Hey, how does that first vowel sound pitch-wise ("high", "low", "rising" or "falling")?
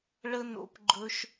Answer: high